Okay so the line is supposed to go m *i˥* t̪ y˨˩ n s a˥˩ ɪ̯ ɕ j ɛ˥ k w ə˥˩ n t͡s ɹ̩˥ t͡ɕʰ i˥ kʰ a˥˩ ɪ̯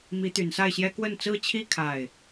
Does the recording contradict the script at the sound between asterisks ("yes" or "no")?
yes